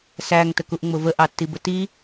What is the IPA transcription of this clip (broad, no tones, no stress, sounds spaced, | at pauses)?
s æ ŋ t ə k u ʔ ŋ͡m ʊ v ə ʔ ɑ tː i b ə t i